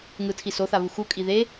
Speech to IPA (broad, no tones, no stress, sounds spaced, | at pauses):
ŋ ɯ tʰ i s o θ a β u x u kʼ i ð e